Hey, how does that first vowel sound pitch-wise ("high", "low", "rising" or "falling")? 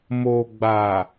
low